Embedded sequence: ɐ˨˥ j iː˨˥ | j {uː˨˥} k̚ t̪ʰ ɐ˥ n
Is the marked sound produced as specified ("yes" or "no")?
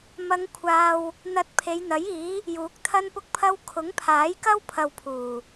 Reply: yes